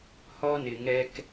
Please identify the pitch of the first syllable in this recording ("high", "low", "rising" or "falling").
high